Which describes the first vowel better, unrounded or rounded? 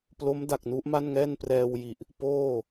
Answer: rounded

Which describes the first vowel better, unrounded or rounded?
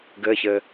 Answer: unrounded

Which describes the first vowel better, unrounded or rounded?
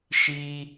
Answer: unrounded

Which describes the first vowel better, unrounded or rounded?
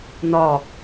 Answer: rounded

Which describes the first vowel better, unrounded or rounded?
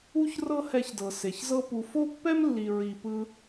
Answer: rounded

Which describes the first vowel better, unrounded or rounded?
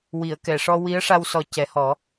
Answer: unrounded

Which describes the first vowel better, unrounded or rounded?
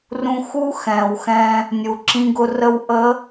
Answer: rounded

